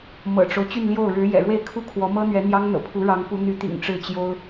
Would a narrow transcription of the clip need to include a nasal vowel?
no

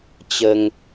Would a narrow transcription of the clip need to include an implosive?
no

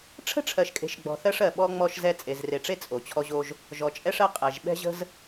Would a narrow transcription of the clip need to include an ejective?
yes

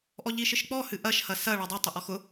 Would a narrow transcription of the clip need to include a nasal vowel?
no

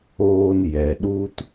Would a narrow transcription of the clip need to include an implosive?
yes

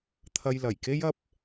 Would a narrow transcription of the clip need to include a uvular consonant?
no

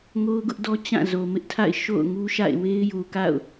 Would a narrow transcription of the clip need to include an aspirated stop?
yes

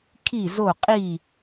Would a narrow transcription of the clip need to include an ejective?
yes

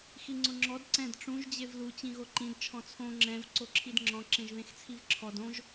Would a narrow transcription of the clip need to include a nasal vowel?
yes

